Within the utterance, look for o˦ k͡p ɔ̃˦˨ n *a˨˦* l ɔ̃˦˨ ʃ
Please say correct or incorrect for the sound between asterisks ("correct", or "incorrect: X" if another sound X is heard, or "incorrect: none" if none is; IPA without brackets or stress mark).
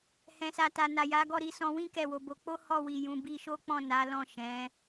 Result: correct